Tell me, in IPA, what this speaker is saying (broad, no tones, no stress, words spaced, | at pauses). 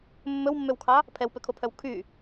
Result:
mːɵwmːøwkʰɑ | pʰɛwpøkʰopʰœw kʰy